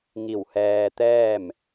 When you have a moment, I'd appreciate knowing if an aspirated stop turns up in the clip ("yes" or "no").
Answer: no